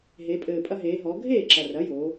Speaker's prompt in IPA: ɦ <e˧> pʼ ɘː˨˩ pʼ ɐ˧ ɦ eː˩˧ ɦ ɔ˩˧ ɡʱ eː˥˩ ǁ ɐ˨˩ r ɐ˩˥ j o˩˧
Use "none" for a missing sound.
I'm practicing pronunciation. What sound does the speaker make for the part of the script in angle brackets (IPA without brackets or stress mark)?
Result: e˩˧